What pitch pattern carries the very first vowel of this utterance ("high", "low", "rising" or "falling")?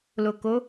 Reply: low